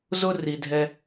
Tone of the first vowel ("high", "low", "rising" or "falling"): high